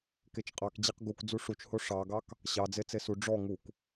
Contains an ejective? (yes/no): yes